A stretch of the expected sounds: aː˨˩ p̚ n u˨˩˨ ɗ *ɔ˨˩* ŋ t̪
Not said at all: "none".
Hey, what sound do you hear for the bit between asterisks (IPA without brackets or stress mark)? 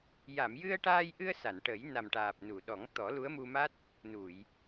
ɔ˨˩˦